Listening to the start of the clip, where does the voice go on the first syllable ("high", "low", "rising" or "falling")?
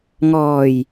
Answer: low